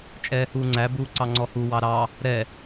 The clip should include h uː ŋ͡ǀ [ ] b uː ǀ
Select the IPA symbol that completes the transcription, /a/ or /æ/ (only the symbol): æ